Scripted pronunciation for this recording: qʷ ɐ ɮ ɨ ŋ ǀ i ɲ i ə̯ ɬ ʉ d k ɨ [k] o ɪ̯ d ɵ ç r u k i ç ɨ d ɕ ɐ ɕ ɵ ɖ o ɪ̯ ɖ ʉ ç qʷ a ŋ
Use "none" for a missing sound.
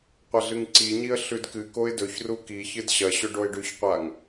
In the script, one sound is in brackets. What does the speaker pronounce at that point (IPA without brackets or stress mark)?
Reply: k